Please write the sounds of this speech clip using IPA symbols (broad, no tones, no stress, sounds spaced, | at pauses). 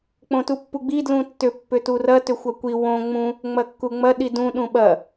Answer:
k͡p õ t u pː u ɡ͡b i d l ũ tː ʏ pː ʏ t u r ɐ t ʏ xʷ ɐ kʷ i w õ ŋ͡m ũ | ŋ͡m ɐ kː u ŋ͡m ɐ ɗ i d ũ ɗ ũ ɓ ɐ